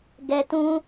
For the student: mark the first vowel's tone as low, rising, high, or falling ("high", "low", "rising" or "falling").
high